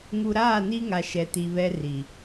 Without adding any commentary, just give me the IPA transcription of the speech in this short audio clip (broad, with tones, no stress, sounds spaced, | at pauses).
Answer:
ŋ u˨ ɾ aː˦˨ n i˦ ŋ a˨ ʃ ɛ˨ t i˨ β ɛ˦ r i˨